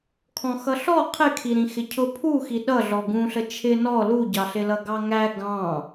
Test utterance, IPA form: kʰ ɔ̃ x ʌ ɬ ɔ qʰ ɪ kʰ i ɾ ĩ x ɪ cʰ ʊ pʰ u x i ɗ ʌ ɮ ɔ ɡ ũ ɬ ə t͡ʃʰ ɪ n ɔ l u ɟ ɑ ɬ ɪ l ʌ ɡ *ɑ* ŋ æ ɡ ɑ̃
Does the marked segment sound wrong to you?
no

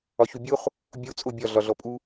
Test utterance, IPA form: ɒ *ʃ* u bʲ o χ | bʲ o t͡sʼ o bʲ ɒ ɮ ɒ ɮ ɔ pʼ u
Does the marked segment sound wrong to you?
yes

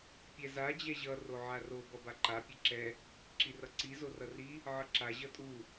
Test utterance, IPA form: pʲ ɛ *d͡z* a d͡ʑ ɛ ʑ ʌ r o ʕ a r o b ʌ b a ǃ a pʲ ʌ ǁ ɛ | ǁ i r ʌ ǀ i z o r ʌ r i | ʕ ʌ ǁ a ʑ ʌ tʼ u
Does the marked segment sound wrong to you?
yes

